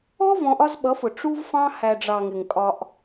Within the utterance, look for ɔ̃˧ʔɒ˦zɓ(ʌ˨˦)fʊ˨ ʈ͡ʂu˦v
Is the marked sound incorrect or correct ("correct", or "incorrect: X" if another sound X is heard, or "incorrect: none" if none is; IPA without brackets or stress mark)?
correct